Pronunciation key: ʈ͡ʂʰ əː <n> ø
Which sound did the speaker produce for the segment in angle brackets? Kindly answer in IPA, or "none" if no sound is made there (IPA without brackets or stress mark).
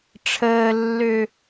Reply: lː